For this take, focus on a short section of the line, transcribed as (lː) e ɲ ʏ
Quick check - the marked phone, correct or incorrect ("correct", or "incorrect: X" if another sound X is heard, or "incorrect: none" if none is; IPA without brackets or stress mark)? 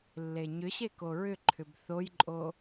correct